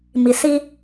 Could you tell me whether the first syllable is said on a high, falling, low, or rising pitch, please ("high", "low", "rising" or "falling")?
low